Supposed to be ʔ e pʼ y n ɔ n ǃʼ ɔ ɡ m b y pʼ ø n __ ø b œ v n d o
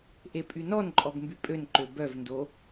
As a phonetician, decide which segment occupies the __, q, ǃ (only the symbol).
ǃ